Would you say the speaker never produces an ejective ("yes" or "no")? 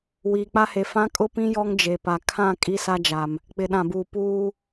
no